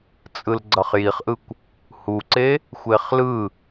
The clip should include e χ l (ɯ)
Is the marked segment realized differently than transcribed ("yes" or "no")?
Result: no